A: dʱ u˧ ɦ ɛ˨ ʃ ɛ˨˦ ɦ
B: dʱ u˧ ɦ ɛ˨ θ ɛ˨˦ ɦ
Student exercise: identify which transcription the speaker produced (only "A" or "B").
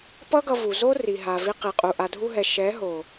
A